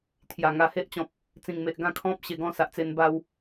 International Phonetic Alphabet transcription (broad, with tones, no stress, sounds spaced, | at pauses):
t̪ʰ j a˨˩ ŋ a˧ h e˦ ʔ t͡ɕ ɔ̃˨ p̚ | t͡s ĩ˨˩ ŋ m e˨ ʔ ɡ ã˥˧ kʰ ɔ̃˦ p̚ ɕ e˧ ɡ ɔ̃˥˧ s a˨ ʔ t͡s e˧ n b a˦ w